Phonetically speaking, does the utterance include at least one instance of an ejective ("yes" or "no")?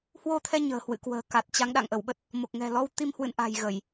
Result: no